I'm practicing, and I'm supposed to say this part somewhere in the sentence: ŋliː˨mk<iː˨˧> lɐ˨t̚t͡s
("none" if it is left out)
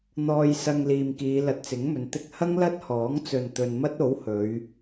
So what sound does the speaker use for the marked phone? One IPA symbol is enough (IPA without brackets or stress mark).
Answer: iː˨˧